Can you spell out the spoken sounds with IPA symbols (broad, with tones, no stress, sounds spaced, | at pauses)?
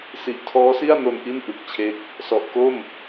s i˨˩ ʔ tʰ ɔː˦˥ s i˥˩ a̯ n o˧ n ʔ i˥˩ n ʔ ɯ˨˩ k̚ t͡ɕʰ e˦˥ k̚ | s ɔ˨˩ ʔ k o˥˩ m